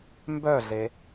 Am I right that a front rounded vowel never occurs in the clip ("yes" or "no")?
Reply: no